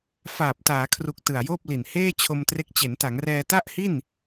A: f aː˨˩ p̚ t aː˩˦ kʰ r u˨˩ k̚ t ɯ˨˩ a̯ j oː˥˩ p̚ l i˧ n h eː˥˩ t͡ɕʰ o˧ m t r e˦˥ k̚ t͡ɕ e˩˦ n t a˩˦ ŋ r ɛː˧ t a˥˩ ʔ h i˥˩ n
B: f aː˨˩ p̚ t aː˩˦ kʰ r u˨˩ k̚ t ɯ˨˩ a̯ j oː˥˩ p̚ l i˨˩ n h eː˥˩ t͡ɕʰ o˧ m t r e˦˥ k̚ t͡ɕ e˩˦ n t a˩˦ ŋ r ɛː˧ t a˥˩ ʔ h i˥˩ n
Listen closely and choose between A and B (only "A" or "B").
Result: B